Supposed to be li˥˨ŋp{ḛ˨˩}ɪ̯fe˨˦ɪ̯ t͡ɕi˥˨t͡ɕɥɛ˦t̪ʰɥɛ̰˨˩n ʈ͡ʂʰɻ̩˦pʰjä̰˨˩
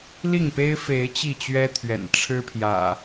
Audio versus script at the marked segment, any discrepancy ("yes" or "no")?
yes